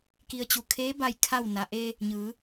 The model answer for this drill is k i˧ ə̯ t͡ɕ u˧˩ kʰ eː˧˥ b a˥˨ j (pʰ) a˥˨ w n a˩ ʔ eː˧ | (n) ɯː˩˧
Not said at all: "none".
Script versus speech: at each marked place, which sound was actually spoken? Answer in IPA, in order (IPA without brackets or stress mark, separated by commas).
kʰ, ɲ